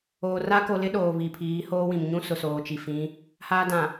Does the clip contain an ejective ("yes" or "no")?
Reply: no